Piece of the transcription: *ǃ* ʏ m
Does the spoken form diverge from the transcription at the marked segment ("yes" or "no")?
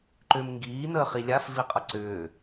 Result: no